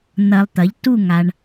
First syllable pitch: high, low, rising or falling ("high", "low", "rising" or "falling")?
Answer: low